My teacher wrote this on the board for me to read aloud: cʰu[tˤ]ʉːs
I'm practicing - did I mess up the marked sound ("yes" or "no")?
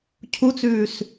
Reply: yes